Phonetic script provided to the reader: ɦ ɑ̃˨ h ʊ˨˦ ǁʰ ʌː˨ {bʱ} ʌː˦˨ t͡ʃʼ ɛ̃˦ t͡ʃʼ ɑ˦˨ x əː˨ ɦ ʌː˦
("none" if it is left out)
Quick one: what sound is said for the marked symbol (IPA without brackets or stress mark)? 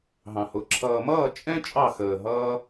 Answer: m